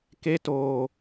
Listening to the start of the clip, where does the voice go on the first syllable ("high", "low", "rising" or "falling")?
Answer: high